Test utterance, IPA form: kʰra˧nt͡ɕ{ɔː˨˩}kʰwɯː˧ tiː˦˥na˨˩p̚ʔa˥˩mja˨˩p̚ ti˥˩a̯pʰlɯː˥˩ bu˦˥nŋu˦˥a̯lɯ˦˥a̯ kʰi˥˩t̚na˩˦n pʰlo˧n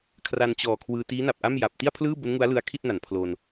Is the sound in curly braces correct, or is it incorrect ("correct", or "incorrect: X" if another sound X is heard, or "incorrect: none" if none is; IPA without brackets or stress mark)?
correct